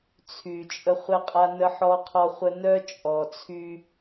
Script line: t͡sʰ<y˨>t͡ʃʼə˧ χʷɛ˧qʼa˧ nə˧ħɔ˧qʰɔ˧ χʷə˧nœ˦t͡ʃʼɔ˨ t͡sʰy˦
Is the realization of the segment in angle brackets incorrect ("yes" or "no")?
no